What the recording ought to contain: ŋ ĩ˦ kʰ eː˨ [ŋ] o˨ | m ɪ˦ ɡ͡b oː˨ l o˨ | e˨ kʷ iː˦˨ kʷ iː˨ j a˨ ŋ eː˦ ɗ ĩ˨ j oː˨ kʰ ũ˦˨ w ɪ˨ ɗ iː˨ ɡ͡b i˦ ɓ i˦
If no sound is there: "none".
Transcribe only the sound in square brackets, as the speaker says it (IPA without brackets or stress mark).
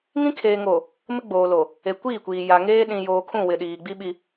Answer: ŋ